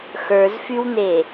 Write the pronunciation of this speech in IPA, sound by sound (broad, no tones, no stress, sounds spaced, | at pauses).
x ə˞ z f y w n̪ e